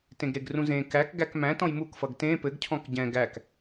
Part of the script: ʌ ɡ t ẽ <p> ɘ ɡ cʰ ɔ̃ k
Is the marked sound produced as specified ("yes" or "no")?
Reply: yes